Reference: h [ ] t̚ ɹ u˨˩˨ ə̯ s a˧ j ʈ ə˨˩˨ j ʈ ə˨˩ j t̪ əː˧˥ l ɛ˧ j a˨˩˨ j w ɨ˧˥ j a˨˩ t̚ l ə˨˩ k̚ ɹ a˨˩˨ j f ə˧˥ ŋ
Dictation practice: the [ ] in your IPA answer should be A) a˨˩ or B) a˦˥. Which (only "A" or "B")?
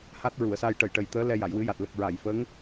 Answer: B